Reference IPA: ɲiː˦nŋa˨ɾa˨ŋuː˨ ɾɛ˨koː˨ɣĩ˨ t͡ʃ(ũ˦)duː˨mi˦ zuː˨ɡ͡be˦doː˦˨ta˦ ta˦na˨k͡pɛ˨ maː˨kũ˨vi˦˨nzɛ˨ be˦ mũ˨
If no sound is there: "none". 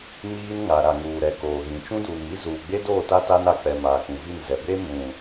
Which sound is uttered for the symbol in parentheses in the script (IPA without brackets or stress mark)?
ũ˦